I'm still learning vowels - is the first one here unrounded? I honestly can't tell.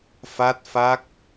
yes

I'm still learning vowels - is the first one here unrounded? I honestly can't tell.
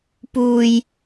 no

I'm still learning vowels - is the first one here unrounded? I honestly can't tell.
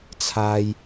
yes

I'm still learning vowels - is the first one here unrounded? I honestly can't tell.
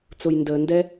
no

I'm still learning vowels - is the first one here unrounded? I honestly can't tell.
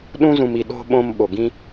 no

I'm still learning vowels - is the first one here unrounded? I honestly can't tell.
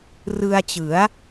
yes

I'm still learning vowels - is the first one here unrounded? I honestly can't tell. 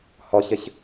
no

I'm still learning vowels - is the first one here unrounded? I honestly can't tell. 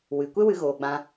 yes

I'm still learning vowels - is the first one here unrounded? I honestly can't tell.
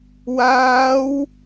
yes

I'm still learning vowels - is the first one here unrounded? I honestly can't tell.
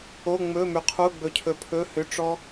no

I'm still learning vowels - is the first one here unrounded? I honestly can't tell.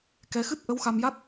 yes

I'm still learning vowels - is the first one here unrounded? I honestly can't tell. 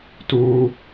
no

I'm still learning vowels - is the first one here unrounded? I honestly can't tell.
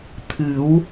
yes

